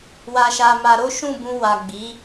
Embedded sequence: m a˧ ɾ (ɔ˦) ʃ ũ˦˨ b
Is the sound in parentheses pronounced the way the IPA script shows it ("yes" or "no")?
no